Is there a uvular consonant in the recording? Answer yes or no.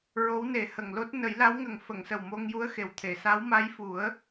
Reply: no